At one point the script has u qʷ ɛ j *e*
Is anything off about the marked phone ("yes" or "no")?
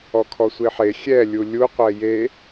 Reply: no